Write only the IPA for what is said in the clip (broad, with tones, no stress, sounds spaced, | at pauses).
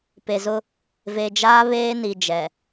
p e˨ z ʊ˦ | v e˨ d͡ʒ aː˦ β eː˦ n i˨ d͡ʒ ɛ˨